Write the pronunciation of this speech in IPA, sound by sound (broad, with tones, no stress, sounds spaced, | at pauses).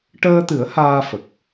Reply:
ʈ əː˧ t̪ ɨ˨˩˦ ə̯ h aː˧ f ə˨˩ k̚